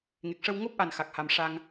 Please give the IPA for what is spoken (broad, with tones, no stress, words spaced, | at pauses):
ŋe˨˩k̚ʂə˧w ŋo˦˥p̚ʔa˨˩n xa˨˩k̚ha˨˩mʂa˧ŋ